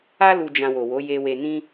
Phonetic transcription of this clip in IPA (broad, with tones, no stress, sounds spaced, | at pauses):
a˦ l u˧ d͡ʒ ã˧ w o˨ w o˨˦ j e˧ w e˧ n ĩ˦